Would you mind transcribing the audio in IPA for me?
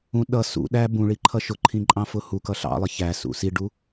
ũ ɗ ʌ s ṵ ɗ æ b ũ ɭ i ǃʰ ʌ ʃ ʊ ǃʰ ĩ ǃʼ ɑ̃ f ʊ h u k ʌ ɬ ɑ̰ lˠ ɪ ç æ s ṵ s i ɖ u

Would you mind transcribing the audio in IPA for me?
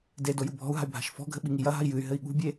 d e d o j u bʱ ɔ̤ u̯ ɦ a̤ y̯ bʱ a̤ ʃ f ɔ̤ ɡʱ ɘ ɓ i ŋ i j ɐ ɦ a̤ i̯ j ɨ y̯ ɦ ɘ i̯ ɠ ṳ bʲ e

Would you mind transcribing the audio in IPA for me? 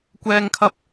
kʷ ɛː˥ ŋ kʰ ɐ˥ p̚

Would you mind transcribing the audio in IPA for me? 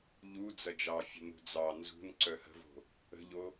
ʎ u d͡z ɐ d͡ʒ ɑ fʲ ə̤ n ṳ d͡z ɑ n z ṳ n ǀ œ h ə̤ v o̤ | ə̤ ʎ o

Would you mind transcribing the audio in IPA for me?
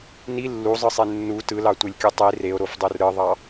n i lː u zˤ ɯ sˤ e nː u t ɯ l ɑ tʷ e lʲ kʲ u tˤ i r e o̯ ɾ o f dˤ o r ɾ ɯ ðˤ ɑ

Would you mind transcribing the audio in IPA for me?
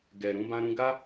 ɡ ɛ˨ ɾ ũ˧ b ã˧ ɾ ũ˧ ɡ a˦

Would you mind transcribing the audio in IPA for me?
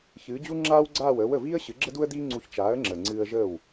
ç ɨː˩˥ d͡ʑ u˥ ŋ͡ǁ aː˥ w ɡ͡ǀ aː˥˩ w əː˩˥ w ə˩ v iː˥ ə̯ ɕ ɨ˩˥ ɡ͡ǁ ə˥ d u˥ ə̯ d iː˥ ŋ͡ǀ u˧ ç t͡ʃ aː˩˥ ə̯ ŋ͡ǁ əː˩ ŋ͡ǀ ɨː˧ ə̯ ʒ əː˥˩ w

